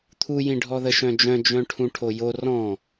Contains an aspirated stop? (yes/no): yes